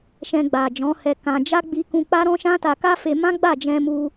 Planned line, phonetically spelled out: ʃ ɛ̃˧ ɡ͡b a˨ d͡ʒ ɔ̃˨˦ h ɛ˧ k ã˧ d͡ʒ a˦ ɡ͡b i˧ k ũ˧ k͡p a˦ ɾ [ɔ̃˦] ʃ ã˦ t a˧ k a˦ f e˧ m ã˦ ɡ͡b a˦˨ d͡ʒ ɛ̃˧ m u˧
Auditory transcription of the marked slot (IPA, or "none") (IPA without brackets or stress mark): ɔ̃˦